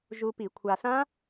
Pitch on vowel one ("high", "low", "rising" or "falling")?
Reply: low